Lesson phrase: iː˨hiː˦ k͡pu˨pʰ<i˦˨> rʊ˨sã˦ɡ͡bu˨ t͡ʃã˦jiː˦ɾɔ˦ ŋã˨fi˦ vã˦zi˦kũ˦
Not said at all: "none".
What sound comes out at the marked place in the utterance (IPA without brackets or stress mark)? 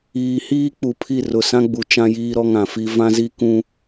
i˦˨